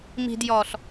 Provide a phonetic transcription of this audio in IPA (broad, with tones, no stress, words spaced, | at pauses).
mi̤˨djɔ˨ɬ